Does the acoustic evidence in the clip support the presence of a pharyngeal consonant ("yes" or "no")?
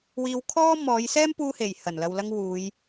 no